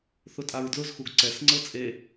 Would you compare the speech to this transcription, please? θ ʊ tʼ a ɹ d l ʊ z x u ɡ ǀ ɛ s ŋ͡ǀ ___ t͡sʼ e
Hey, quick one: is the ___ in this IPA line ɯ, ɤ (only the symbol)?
ɤ